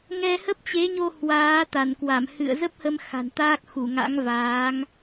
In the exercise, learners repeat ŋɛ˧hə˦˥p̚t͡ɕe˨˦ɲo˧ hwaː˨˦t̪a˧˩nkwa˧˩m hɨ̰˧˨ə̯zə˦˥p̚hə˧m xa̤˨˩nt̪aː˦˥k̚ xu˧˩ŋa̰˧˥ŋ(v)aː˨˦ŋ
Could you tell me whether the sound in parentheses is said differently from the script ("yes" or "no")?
no